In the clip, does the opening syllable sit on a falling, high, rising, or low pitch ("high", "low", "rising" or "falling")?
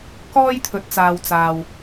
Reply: high